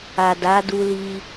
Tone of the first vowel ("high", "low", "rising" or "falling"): low